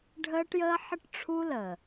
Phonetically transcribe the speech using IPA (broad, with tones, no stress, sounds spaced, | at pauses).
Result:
ɖʱ əː˦ ʈ j əː˦ ħ ə˦ ʈ ʈ͡ʂʰ u˦ l ə˨